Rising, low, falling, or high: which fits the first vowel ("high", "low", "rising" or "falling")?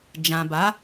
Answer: low